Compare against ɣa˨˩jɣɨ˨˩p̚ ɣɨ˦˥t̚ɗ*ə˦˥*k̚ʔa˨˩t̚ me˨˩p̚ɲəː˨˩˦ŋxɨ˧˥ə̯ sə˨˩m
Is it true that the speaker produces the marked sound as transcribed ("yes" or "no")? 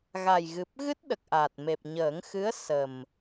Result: no